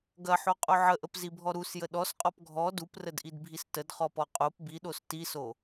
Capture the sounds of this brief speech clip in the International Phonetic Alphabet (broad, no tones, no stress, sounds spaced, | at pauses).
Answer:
ɡ ɐ ħ o qʼ o ʕ ə ʔ ə p z i bʱ ɔ ɾ u s j ə ɗ ɔ s qʼ ɔ p ɡʱ ɔ d u p r ə d ʔ i d bʱ i s t ə d χ ɔ p ɔ qʼ o p b i ɗ o s t i s o